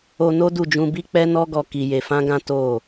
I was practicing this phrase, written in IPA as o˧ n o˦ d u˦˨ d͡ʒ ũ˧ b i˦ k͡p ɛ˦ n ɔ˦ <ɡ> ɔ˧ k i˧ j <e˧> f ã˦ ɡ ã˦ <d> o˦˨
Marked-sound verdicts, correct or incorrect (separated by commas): correct, correct, incorrect